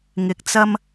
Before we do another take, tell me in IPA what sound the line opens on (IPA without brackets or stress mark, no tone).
ŋ